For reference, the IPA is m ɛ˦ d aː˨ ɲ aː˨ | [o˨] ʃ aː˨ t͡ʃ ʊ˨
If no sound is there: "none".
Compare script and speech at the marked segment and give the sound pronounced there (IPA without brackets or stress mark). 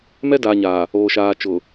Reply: oː˨